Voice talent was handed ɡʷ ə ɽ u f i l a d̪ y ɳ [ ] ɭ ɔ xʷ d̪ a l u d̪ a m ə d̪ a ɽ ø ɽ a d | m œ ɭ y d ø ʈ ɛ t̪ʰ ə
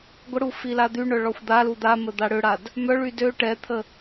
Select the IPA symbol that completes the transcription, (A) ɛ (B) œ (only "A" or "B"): B